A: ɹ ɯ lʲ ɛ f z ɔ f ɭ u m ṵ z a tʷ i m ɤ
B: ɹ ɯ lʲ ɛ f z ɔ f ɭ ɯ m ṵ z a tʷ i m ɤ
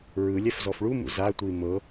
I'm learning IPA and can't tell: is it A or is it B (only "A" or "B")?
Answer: A